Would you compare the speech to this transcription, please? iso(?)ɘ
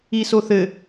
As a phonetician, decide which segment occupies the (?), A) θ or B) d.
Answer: A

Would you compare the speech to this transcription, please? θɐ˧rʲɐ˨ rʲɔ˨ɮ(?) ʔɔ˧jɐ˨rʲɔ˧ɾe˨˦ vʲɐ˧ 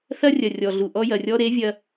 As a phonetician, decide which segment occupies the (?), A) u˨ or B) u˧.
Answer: A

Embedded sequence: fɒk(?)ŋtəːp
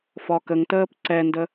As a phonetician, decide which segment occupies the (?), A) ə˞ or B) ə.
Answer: B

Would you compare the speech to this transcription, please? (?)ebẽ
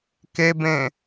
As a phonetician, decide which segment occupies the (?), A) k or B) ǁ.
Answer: A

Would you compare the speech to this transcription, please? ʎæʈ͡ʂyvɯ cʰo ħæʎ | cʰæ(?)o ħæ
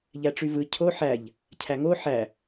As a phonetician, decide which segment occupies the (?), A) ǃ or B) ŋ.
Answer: B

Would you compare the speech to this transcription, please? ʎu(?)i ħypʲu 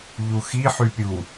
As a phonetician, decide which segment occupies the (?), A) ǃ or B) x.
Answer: B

